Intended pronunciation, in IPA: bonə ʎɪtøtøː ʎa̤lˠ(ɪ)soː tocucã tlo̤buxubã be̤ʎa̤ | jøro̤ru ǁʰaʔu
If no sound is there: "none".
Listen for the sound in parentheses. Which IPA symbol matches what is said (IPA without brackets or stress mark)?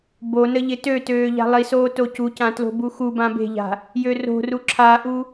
i